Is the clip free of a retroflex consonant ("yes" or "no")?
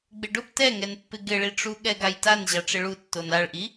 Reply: no